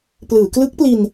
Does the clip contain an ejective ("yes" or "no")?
no